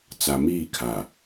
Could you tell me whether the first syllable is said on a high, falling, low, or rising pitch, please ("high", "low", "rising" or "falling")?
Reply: low